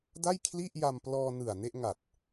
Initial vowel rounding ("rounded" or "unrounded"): unrounded